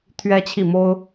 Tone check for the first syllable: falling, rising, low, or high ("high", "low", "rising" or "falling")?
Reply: high